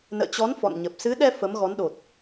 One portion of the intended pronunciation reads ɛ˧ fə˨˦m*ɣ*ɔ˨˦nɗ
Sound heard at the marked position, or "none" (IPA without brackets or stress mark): ɣ